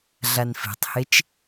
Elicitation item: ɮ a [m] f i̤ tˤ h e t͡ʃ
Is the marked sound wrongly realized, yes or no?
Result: yes